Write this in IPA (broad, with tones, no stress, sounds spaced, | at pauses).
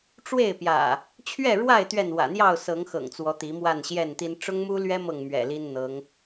ʈ͡ʂ w e˥˨ ɪ̯ p j ä̰˨˩ | t͡ɕʰ ɥ ɛ˥˨ ɻ w a˥˨ ɪ̯ t̪ ɥ ɛ˥˨ n w ä̰˨˩ n̪ j ɑ˥˨ ʊ̯ s ɤ˨˦ ŋ x ɤ̰˨˩ ŋ t͡s w ɔ˨˦ t̪ i˨˦ m w a˥˨ n ɕ j ɛ˥˨ n t̪ i˦ n ʈ͡ʂ ʊ˦ ŋ m u˦ l ɥ ɛ˦ m ɤ˥˨ ŋ m ɥ ɛ̰˨˩ l i˦ n n̪ ɤ˨˦ ŋ